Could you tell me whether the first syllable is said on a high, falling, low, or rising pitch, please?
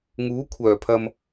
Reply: rising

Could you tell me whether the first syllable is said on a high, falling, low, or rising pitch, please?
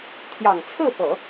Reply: low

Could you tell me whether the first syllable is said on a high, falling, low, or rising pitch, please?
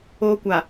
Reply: high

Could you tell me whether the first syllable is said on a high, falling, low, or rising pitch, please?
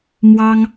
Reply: high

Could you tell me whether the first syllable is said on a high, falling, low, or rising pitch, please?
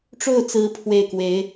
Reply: falling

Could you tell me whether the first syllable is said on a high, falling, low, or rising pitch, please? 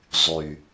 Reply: low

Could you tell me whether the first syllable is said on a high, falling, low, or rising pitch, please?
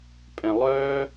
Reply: low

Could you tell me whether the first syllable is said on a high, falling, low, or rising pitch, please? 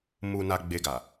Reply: low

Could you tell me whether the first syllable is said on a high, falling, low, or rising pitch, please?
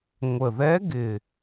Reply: low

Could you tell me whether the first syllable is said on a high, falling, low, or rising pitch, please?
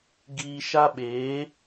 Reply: high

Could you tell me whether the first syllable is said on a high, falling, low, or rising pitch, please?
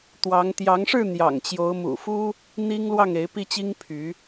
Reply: rising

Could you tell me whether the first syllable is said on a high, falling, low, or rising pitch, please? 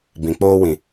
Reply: low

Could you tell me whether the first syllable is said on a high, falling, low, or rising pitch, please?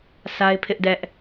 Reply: high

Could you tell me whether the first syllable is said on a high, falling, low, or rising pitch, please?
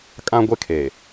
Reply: high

